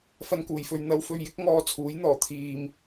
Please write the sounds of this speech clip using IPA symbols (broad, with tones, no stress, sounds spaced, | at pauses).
f ɐ˧ n k uː˨˩ j f ɵ˨ ɥ n̪ ɐ˧ w f ɵ˧ ɥ j ɪ˥ k̚ ŋ ɔː˧ t͡sʰ uː˨˥ j n̪ ɔː˨˩ t̪ʰ iː˨ m